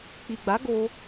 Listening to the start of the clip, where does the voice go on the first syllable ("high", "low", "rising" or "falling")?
low